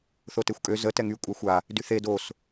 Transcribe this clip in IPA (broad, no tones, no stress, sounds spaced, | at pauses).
θ o t e xʷ kʼ ø z ə t ɛ ŋ y kʷʼ a xʷ a | d y θ e d o s